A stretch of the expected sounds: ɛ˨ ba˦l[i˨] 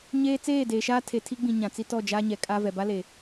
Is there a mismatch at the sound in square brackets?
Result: yes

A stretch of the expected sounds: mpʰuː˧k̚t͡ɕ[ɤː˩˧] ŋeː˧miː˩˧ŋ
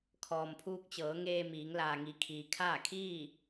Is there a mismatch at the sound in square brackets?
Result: no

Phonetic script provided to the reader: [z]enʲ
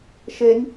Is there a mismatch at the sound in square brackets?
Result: yes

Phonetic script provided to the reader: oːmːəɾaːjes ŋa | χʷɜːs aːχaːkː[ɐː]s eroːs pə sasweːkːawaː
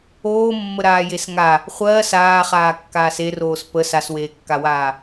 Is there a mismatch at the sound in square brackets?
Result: yes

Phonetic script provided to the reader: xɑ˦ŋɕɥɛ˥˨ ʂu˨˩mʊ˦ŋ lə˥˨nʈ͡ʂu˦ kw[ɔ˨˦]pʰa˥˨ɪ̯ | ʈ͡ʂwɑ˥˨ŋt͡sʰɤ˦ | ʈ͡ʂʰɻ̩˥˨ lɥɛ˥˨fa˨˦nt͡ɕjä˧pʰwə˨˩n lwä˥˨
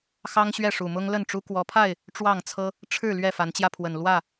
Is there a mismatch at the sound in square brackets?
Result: no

